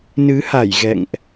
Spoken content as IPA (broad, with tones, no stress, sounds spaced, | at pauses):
n ɨ˨˦ h a˧˩ j ɣ ɛ̰˧˨ ŋ ʔ